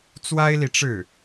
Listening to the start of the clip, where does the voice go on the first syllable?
high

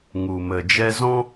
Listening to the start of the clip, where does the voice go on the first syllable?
low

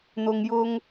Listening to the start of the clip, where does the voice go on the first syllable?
low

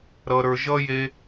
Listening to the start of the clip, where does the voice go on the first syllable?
low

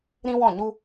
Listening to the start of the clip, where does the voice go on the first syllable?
high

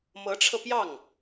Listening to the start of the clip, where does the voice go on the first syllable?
rising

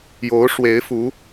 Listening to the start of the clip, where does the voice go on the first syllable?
rising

